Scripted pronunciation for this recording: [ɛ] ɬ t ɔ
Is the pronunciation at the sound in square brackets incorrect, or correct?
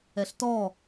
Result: correct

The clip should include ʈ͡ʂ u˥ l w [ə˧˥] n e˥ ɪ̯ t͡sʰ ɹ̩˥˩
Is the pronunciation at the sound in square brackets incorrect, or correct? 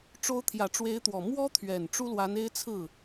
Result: incorrect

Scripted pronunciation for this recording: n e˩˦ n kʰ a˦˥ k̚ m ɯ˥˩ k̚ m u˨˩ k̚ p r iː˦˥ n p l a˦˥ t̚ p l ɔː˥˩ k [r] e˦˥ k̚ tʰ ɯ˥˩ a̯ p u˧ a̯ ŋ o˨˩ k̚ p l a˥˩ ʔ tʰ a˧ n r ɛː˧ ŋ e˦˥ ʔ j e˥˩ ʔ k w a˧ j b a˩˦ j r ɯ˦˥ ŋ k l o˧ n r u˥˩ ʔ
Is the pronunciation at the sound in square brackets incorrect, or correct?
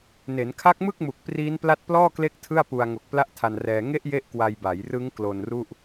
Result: incorrect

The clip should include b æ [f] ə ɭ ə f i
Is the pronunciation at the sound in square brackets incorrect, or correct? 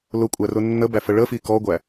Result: correct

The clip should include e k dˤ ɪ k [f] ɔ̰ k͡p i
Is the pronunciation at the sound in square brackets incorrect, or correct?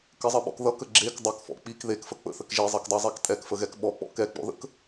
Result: correct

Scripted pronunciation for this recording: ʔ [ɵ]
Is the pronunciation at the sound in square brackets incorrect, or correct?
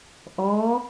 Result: incorrect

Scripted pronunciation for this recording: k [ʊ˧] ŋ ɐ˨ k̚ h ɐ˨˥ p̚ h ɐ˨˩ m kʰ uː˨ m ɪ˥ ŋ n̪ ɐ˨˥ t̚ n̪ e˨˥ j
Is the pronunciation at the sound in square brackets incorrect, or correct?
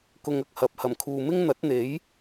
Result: correct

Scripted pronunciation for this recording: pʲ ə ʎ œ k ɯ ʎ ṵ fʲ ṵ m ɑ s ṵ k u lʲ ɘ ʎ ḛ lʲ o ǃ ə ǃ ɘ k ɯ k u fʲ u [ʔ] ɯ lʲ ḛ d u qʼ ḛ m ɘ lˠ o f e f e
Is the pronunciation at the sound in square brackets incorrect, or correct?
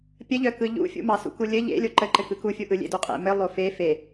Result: correct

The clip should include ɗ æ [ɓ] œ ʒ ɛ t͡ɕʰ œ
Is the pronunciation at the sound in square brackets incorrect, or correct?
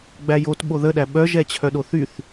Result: correct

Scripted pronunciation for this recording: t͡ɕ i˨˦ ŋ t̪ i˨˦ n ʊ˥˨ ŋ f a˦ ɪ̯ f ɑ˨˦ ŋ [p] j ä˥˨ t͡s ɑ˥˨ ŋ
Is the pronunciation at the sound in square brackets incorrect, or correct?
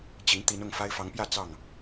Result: correct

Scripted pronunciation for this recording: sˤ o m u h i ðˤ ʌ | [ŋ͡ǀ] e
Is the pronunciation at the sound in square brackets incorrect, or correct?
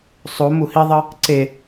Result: incorrect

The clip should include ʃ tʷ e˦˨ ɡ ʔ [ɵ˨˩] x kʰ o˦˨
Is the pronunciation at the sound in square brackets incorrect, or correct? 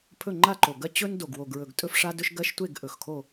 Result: correct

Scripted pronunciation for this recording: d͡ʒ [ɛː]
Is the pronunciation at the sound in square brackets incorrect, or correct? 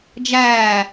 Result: incorrect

